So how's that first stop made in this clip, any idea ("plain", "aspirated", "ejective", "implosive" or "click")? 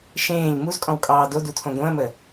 ejective